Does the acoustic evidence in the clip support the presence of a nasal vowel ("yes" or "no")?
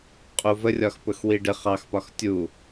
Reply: no